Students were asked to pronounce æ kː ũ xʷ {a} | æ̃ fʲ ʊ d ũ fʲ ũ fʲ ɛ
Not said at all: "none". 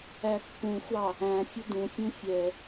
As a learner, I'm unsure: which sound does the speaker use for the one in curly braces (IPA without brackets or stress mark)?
ɑ